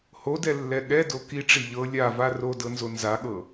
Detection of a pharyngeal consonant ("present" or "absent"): absent